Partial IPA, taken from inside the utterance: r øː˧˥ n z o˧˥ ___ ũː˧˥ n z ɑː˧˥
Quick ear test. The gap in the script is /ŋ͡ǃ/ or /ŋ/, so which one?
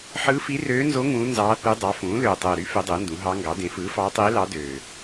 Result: ŋ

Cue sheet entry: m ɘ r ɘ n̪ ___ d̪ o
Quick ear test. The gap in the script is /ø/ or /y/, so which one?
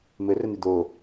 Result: y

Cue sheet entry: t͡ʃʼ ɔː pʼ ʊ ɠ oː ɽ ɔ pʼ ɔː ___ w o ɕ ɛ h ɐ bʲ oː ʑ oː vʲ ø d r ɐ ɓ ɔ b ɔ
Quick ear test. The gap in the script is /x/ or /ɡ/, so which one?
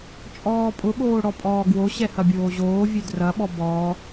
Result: ɡ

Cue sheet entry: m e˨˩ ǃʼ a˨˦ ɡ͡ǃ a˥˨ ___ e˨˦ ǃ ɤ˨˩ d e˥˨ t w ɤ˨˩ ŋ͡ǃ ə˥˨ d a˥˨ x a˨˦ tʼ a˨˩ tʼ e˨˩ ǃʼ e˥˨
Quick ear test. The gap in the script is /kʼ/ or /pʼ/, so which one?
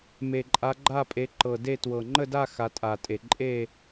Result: pʼ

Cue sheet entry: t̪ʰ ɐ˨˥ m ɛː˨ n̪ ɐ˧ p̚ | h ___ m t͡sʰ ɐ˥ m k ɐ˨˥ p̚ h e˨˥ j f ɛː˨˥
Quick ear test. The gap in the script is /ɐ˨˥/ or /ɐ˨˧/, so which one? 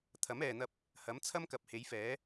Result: ɐ˨˥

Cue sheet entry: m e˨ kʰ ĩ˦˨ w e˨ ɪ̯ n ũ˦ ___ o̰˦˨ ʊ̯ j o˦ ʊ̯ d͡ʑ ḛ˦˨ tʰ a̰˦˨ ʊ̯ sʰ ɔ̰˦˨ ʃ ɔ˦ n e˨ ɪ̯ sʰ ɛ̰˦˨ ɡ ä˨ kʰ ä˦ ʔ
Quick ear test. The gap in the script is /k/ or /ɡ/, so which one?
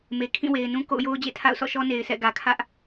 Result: k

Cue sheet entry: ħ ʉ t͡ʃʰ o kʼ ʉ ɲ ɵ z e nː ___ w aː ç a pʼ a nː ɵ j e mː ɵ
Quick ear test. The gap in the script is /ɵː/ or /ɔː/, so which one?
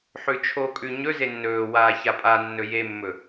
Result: ɵː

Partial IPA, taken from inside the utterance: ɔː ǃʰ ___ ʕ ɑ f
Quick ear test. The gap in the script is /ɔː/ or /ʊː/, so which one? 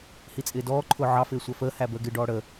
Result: ʊː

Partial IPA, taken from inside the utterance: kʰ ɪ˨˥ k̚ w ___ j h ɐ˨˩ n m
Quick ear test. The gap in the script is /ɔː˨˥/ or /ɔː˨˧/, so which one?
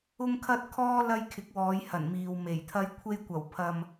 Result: ɔː˨˧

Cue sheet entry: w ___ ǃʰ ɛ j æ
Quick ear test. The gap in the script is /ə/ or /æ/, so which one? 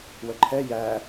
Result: ə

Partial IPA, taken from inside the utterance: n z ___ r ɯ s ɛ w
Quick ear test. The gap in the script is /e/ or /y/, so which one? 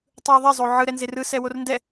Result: e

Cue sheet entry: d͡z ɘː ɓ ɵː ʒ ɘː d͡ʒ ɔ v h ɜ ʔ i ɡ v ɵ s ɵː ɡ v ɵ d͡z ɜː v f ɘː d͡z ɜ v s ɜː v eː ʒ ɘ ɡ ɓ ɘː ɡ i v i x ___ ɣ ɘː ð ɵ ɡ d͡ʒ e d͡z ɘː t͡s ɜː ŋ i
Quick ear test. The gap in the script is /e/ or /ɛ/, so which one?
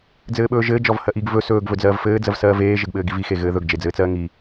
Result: e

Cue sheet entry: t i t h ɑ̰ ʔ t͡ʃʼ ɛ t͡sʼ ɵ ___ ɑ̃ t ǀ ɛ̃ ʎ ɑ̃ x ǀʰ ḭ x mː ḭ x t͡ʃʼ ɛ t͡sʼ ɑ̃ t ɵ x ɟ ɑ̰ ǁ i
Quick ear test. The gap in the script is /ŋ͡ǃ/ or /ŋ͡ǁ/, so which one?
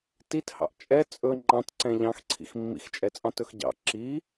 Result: ŋ͡ǃ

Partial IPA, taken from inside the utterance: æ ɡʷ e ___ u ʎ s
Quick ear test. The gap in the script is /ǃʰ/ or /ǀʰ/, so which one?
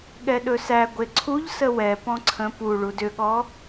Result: ǀʰ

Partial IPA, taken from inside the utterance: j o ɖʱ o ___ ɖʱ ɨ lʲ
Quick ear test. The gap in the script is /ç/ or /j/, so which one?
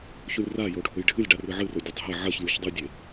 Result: j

